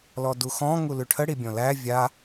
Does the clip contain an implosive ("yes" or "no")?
no